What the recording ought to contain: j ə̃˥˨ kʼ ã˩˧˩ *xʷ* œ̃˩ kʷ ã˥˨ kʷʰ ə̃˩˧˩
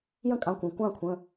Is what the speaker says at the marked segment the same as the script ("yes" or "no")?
no